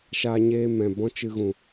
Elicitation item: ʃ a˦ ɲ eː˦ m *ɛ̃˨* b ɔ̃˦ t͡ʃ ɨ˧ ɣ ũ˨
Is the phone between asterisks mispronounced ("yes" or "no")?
no